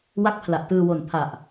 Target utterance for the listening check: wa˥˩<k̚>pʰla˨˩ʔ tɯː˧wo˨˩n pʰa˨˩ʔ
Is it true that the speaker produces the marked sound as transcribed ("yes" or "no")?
yes